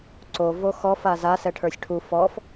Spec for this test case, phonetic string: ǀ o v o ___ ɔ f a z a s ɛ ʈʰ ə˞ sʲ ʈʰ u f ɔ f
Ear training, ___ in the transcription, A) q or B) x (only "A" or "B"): B